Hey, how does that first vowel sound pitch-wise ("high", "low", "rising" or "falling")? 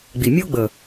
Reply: low